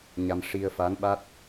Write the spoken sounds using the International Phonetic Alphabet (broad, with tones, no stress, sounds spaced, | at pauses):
ɲ a˧ m ʂ i˧ ə̯ f a˧˥ n ɓ a˦˥ t̚